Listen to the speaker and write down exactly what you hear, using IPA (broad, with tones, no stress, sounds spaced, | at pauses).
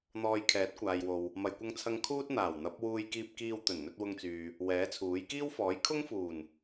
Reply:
n̪ ɔː˧ j kʰ ɛː˨˥ t̚ kʷ aː˨ j w o˨ w | m ɐ˧ j kʷ ɐ˥ ŋ t͡sʰ ɐ˥ ŋ kʰ uː˥ t̚ n̪ aː˨˩ w n̪ ɐ˨˥ p̚ w uː˧ j k iː˧ p̚ k iː˧ w t̪ ɵ˨˩ n n̪ ɵ˧ t̚ w ʊ˧ ŋ t͡s yː˨ | w ɛː˨˥ t͡sʰ uː˨˥ j k iː˥ w f ɔː˨˥ j kʰ ʊ˥ ŋ f uː˨˩ n